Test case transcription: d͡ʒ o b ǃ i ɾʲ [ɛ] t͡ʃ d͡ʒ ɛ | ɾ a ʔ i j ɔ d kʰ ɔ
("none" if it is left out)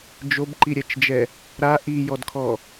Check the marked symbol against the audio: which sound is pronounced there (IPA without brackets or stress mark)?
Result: ɛ